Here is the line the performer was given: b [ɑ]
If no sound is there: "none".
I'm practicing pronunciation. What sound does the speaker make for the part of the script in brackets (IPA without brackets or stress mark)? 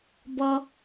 ʌ